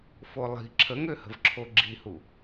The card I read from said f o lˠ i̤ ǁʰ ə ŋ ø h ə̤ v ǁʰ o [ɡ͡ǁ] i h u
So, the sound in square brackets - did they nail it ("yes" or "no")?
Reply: yes